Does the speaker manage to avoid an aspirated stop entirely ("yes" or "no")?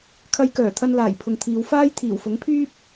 no